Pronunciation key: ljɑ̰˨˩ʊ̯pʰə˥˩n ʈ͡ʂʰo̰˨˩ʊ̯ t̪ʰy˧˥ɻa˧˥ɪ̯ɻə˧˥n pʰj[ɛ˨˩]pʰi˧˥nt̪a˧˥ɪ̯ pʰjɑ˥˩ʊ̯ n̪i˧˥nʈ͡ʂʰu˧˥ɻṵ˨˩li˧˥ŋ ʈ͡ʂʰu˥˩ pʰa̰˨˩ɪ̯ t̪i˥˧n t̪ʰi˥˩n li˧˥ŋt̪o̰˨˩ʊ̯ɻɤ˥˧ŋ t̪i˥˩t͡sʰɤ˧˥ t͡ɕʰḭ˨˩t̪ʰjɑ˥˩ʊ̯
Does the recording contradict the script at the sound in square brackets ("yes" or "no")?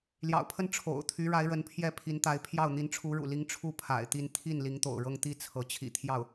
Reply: yes